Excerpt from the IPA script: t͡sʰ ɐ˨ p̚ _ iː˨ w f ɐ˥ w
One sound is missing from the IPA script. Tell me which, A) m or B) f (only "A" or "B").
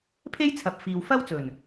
B